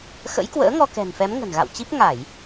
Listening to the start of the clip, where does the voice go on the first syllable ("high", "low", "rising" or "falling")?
rising